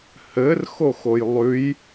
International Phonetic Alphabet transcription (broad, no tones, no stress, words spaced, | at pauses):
hɘrxoxoj lˠʉj